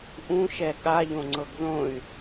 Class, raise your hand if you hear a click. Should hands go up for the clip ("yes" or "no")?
yes